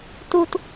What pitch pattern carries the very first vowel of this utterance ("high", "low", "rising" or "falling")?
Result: high